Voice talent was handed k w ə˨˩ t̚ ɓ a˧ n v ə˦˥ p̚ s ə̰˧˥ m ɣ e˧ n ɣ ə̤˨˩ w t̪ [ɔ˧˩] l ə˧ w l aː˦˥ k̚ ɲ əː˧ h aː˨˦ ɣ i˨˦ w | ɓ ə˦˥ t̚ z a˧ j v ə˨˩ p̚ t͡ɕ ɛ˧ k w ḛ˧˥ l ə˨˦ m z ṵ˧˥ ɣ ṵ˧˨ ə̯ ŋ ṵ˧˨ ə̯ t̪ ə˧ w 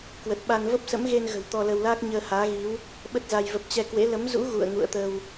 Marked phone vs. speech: incorrect: ɔ˧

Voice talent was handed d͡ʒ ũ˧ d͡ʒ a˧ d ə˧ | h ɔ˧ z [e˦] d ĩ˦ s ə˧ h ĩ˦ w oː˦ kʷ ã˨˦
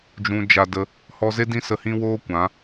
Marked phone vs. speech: correct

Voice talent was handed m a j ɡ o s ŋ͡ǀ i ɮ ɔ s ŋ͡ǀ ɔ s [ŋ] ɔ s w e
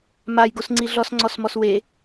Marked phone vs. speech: incorrect: m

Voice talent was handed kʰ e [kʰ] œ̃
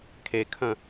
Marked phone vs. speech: correct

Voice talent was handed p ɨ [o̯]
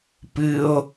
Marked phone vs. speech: correct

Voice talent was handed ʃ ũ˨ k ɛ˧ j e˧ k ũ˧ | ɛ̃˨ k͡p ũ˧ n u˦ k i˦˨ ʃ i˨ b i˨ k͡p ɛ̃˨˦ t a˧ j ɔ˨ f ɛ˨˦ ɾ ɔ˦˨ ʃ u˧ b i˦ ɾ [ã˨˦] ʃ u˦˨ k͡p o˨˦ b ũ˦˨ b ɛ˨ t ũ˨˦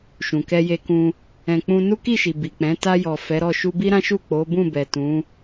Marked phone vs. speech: incorrect: ã˦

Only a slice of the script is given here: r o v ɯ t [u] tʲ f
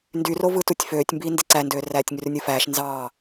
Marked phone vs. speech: correct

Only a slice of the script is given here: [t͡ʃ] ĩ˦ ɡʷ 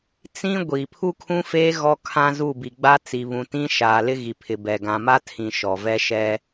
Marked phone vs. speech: incorrect: t͡s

